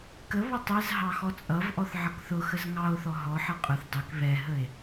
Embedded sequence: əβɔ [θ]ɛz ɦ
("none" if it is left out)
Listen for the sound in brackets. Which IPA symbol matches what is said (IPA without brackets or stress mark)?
tˤ